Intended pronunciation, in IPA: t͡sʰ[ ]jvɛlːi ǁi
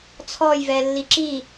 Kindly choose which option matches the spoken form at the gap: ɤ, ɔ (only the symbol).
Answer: ɔ